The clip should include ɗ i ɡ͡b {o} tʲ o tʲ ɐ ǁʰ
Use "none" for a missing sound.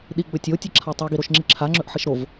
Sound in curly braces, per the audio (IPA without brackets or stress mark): ɵ